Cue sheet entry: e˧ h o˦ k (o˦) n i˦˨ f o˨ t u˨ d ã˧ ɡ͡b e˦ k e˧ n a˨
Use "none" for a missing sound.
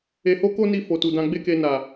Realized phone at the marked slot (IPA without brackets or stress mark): o˦